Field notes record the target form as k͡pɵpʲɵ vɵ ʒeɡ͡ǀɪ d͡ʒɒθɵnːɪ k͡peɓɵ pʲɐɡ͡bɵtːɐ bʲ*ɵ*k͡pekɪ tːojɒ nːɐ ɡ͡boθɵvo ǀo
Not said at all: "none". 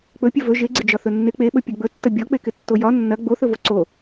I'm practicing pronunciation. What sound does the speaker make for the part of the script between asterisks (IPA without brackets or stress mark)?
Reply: ɔ